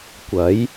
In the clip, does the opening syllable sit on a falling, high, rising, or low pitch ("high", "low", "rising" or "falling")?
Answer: rising